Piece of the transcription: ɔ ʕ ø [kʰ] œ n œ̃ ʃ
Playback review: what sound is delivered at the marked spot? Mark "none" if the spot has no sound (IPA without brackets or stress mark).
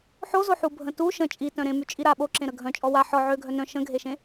ɡʱ